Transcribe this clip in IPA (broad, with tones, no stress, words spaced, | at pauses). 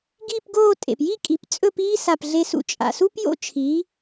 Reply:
ɡiː˥˧pɡoː˥˧ tʼḛ˩pji˥˧ kʼi˩˥pt͡sʼɵ˥˧p iː˥sa˧˩p ɮe˧sṵ˧˩t͡ʃʼa̰˩su˥p jo̰˥t͡ʃʰiː˩˥